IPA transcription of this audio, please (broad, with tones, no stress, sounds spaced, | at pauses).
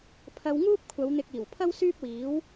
pʰ ɐ˧ w ŋ uː˥ p̚ kʷʰ ɐ˨˧ w n̪ ɪ˨ k̚ iː˨˩ w pʰ ɐ˥ w s yː˥ p̚ w iː˨˥ w